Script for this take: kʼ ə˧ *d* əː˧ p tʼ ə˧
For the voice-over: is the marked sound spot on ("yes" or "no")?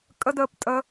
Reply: yes